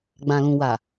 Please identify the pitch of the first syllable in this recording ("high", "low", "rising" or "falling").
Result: low